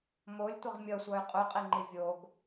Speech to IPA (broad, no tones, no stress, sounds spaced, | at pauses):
m o lʲ tʷ ɪ ʁ mʲ ʌ sʷ ʌ y̯ qʼ u qʼ i ŋ͡ǃ i vʲ o ɡ